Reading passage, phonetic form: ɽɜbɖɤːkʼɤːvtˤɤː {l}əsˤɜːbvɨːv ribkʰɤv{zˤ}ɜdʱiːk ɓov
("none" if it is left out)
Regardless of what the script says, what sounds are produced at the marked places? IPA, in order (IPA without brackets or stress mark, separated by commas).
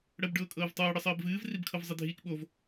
ɽ, zˤ